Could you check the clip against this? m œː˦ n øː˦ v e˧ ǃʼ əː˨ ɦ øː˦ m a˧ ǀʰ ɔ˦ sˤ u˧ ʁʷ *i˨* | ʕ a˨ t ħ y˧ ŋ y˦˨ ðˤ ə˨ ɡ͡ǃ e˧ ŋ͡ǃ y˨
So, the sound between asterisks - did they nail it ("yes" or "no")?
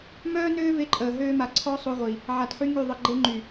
yes